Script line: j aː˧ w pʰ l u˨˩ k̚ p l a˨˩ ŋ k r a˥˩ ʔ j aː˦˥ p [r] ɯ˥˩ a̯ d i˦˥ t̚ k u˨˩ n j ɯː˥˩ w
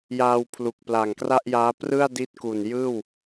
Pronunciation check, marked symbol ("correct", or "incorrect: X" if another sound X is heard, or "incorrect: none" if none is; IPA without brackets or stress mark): correct